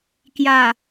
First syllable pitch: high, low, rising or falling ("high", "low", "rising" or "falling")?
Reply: low